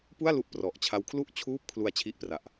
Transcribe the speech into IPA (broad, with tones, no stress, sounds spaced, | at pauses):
p u˥˩ a̯ l u˦˥ ʔ p r ɔ˨˩ ʔ t͡ɕʰ a˦˥ w kʰ l u˥˩ ʔ t͡ɕʰ uː˥˩ p̚ kʰ l u˧ a̯ t͡ɕʰ i˦˥ ʔ p r a˨˩ ʔ